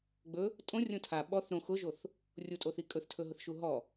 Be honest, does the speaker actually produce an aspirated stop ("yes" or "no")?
yes